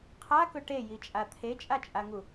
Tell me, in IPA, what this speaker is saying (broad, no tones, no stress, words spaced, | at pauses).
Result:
qʰakɵ ʈejit͡ʃʼa t̪ʰet͡ʃʼat͡ʃʼaŋu